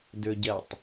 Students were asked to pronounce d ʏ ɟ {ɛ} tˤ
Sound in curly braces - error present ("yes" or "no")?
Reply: no